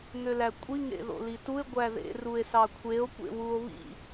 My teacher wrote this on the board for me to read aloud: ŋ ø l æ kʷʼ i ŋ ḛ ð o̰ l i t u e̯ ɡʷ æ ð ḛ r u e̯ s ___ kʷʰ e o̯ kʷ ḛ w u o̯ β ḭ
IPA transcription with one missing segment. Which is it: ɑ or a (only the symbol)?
ɑ